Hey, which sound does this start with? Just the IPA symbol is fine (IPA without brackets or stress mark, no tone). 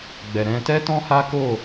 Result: ɡ͡b